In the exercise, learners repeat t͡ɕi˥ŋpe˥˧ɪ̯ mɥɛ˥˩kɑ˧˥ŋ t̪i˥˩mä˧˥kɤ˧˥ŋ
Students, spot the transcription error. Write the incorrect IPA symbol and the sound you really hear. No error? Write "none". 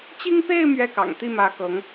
ɑ˧˥ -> ɑ̰˨˩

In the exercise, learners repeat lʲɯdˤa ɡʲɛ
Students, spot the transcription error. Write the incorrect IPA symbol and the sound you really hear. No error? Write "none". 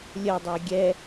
ɯ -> ə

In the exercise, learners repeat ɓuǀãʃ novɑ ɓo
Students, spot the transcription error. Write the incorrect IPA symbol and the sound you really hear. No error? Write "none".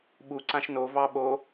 none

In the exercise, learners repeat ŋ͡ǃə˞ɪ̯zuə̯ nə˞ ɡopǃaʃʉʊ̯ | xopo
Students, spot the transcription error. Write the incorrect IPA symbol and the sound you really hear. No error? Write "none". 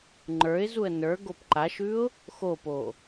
none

